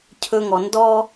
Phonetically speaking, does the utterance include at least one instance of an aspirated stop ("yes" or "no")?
yes